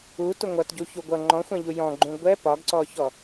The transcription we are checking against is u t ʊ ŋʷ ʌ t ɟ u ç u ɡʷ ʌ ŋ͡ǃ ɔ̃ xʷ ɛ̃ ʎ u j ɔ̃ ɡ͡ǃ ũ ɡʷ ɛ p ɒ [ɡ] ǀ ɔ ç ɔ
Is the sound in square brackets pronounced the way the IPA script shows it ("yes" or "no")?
yes